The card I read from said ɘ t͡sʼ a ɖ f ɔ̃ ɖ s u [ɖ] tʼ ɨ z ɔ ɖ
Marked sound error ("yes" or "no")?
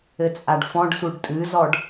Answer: no